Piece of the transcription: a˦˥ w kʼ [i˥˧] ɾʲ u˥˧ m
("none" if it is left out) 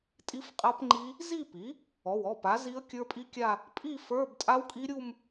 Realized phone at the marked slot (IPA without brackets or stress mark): i˦˥